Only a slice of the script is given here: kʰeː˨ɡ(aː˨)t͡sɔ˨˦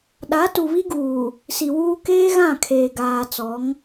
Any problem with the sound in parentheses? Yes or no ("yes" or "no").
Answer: no